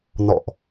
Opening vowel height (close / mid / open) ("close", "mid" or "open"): mid